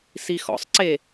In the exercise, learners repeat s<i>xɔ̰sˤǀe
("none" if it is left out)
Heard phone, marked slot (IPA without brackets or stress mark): i